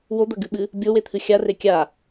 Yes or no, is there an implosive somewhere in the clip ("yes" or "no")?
yes